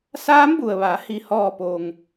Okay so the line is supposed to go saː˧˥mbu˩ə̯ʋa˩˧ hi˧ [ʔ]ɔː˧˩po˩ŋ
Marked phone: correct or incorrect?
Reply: incorrect